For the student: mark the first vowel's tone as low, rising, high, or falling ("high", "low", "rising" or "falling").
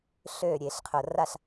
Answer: falling